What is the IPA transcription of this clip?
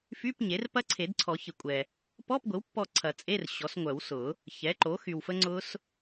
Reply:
f y˧˥˧ p ɲ e˩˥ r p ɐ˦˥ ǀʰ e˨˩˦ d ǀʰ ɔ˨˩˦ ç ɪ˨ kʷʼ ɛ˨ | p ɔ˧˥˧ p ɡʷ ɪ˩˥ w pː ɔ˦˨ ǀʰ ɐ˨˩˦ t͡sʼ e˧˥˧ r ɕ ɔ˩˥ s ŋʷ œ˨˩˦ w s ʊ˨˩˦ | ç ɛ˩˥ ǃ o˩˥ x y˨ w f ə˦˥ ŋ͡ǀ ʊ˦˥ s

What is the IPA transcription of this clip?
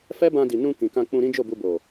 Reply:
f ɛ˦ b ã˧ d i˨ n ũ˧ k ĩ˨ k ã˧ k͡p ũ˧ ɾ ĩ˦ d͡ʒ o˦˨ b u˧ b o˨

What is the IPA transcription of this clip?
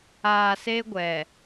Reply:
aː˨ s e˦ ɡʷ ɛ˨

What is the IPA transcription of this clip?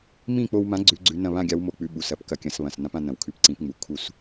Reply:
m ĩ˥˨ k͡p o˧ w m ã˨˥ ɡ͡ǀ ʉ˨˥ ɡ͡ǀ ʉ˨˥ n ɐ̃˥˨ β ã˥˨ ɡʲ a˨˥ w m o˨˥ k͡p ʉ˨˥ ɓ u˩ s ɐ˨˥ p k ɐ˧ kʲ ɐ̃˨˥ s β ɐ̃˩ s n ã˨˥ p ã˧ n ɐ̃˩ w kʰ ʉ˨˥ p ǀ ĩ˨˥ p ŋ͡m u˩ kʰ u˥˨ s

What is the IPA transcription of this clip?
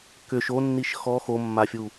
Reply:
k ʏ ʃ o nː i ʃ x ɔ x o mː a fʲ u

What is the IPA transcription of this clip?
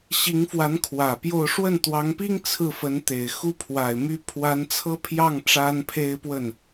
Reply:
ɕ i˧˥ ŋ f w a˧˥ n kʰ w ä˨˩ p j o˥˧ ʊ̯ ʂ w ə˥˩ n t̪ w ɑ˧˥ ŋ p i˥ ŋ t͡sʰ ɹ̩˥˩ f ə˧˥ n t̪ e˨˩ ɪ̯ x u˥ pʰ w a˨˩ ɪ̯ m y˥ pʰ w a˧˥ n t͡sʰ ɤ˥ pʰ j ɑ˥˩ ŋ ʈ͡ʂ a˥ n pʰ e˥ ɪ̯ p w ə˥˩ n

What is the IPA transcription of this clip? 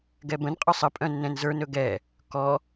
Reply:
ɡ ɛ b ə̃ n qʼ œ sˤ ə pʼ œ̃ nː ɛ̃ n z ə˞ n ɵ ɡ ɛ | k ɔ

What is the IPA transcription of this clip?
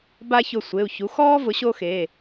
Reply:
b a˥ ç ʊ˦˨ sʷ e˩˧˩ u̯ ç u˨˥ x ɔː˥ v ʊ˨˥ ɕ o˥ x eː˩˧˩

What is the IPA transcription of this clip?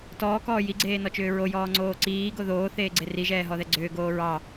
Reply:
t ɔː k ɔː j i ɡ͡ǀ eː n ɔ t͡ʃ ʏː ɹ o j ɔː ŋ͡ǀ oː ǀ iː ɡ o ð oː θ eː ɡ͡ǀ e r i ʒ ɛː ɦ ɔ ð ɛ ɡ͡ǀ ʏː ɡ oː ɹ ɑ

